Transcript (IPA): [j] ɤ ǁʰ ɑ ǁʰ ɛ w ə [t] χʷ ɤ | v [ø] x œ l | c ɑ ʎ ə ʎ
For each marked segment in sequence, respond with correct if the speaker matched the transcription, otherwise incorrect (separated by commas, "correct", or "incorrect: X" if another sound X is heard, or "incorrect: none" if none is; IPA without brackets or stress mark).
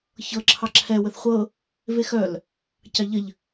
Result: incorrect: ç, incorrect: θ, incorrect: e